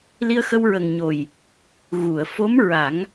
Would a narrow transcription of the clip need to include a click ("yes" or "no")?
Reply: no